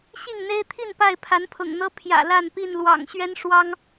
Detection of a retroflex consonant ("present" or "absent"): present